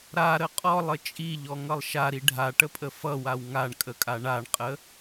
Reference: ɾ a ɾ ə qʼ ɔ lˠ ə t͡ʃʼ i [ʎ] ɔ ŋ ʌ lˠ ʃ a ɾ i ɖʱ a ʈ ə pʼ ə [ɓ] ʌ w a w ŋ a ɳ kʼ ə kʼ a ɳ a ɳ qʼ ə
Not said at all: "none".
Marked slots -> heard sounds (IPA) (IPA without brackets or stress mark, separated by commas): ʎ, f